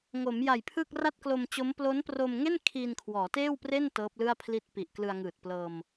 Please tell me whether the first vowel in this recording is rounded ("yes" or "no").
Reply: yes